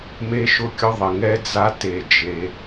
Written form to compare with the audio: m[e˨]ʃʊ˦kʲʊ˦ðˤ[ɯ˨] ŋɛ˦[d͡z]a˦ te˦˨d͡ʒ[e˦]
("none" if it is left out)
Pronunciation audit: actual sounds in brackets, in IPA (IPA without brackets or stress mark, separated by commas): e˦, ə˨, d͡z, e˦